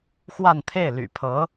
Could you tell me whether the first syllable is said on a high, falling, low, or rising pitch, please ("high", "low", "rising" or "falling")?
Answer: falling